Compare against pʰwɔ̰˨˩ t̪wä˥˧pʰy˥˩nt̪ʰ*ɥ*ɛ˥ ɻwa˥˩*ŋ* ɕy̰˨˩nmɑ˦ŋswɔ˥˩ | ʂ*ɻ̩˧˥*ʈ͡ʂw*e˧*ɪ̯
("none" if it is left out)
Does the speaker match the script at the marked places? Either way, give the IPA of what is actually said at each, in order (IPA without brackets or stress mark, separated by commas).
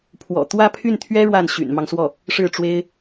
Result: ɥ, n, ɻ̩˥˩, e˥